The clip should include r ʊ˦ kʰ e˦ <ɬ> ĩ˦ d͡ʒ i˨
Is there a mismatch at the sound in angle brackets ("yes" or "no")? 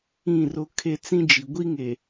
yes